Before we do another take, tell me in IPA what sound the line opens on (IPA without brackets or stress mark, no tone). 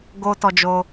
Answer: ɡ